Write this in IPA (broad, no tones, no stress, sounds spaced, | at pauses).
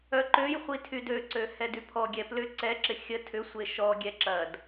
œ ǃ ø j χʷ i tʰ y d ø ǀ ø h ɛ d y pʰ ɔ ɡʲ ɛ p l ʏ ǀ ɛ ǁ ɪ xʲ ə tʰ ʏ sʷ e ʃ ɔ ɡʲ ɛ ǁ ɐ d